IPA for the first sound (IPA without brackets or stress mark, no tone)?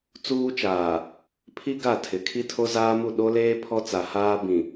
t͡s